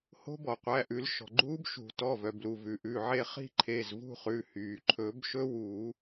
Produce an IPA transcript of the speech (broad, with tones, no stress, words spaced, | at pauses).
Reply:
ho̤˦˥bɔ˩qʷæ˩˧˩ʔʉ˨˩˦l ʃɔ̤˩ɡ͡ǃuː˦˥bʃṳ˨˩˦ tɔ˩˧˩vœ˩blu˩ vʉ˩ʔʉ˩˧˩ʕe˥˧ χi̤˥˧ǃʰe˩˧˩zvṳ˥˧χʉ˩˧˩ hyː˩ ǃʰɵ˨˩˦bʃɵ˦˥ wuː˨˩˦